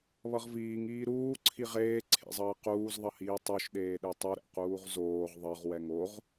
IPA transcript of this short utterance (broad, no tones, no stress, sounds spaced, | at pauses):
β ʌ ʁ v iː ŋ iː ɾ uː ǀʰ i ʁ eː ǀʰ ḛ zˤ ʌː q uː z ðˤ ʌ h iː tˤ o ʃ ɗ eː ɗ e tˤ u ɾ ɛ̰ q uː ʁ z oː ʁ ðˤ ʌ ʁ w ɛ ŋ o ʁ